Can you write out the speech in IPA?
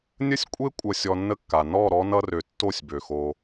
nʲə˦sʲkʷʼe˦ kʷʼʌ˧sʲɔ˧nːə˦kːa˨ nɔ˦˨ɾɔ˧nʌ˧rø˨ tːo˦˨sʲbø˨xo˧

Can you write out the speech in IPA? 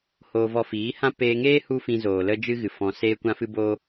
hoː˧vɔ˧fiː˨˦hã˦ peː˧ŋeː˦ hu˦fĩ˧zoː˨ lə˦d͡ʒɨ˦ɣɨ˨ fɔ̃˧ seː˦kʷã˦fɨ˦bo˦

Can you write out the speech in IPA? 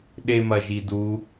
ɗemɐʒidu

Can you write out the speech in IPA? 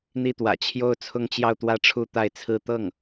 n̪i˥˩t̪wä̰˨˩ t͡ɕʰjo˥˧ʊ̯t͡sʰʊ˥˧ŋt͡ɕjɑ˥˧ʊ̯t̪wä˥˧ ʈ͡ʂʰu˥˧t̪a˥˩ɪ̯t͡sʰɹ̩˥ t̪ɤ˥˩ŋ

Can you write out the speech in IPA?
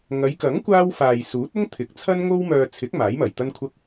ŋɐ˨˧jkɐ˨˥ŋ kʷaː˥w faː˨jsuː˨˥t̚ʊ˥ŋt̪ʰɪ˨˥k̚ t͡sʰɐ˥nŋo˥wmœː˧ t͡sʰɪ˨˥k̚ maː˨˥jmɐ˨˩jt̪ɐ˥nkʷʰɐ˥k̚

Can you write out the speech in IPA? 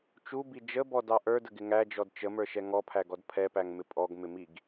t͡ʃubi d͡ʒəbɔdɑ ʔə˞dəɡɪ ŋæd͡ʒɔd t͡ʃəmə˞ʃɛ ŋɔpʰæɡɔd pʰɛpæŋmɪ pʼɔɡmɪmiɡ

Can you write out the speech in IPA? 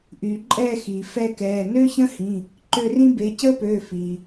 ʔyː˩ǃʼɛː˦˨ xiː˩ fɛ˦˨kɛː˩˧˩ nø˥çə̃˥hĩ˩˧˩ | ǃø˦˨rĩ˥ be˩˧˩cəː˥pøː˩˧˩ fi˩

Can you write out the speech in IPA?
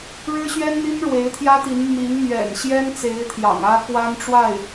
ɻɻ̩˥ɕɥɛ˥nn̪i˥n ɻwe˧˥ɪ̯t̪ʰjä˥t̪i˧˥n mi˧˥ŋmɥɛ̰˨˩nɕjɛ˥nt͡se˧˥ɪ̯ t̪ʰjɑ̰˨˩ŋä˥kwa˥nʈ͡ʂwa˥˩ɪ̯

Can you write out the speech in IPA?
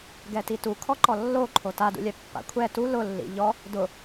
ɡɛtitu kʰɔǃɔlːo ǃʰotadṵlʲɛ pːa̰kʷʰɛ tu lʊlːḭ ʎɔ | dʊ

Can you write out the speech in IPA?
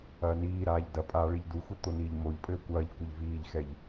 ɐːniːɾaːʎ dɐpʼaː ɭiʎduxʷɨ t̪oniːʎmoʎpʼɘː kʷɐːʎ kʷɘʎviːʎxɛʎ

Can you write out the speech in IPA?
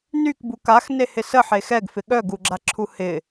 nykbu kaxnehɪ səħe xɛɡfɪ ɠœɡuɡ͡ǁaǁʰu hɪ

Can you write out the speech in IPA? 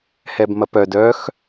hɛbmɐpœ dœx

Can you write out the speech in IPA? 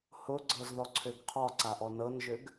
hʊɡ͡ǀɤz ðɔǀʰøɡqʰɒǀa ʔɔnɤnʒøɡ

